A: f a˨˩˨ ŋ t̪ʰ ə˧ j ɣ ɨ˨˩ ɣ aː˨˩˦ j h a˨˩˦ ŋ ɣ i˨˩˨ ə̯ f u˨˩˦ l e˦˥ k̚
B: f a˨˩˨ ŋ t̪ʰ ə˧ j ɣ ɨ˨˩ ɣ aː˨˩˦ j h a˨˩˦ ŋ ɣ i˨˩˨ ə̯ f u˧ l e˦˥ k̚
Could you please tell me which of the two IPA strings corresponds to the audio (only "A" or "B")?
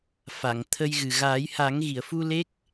B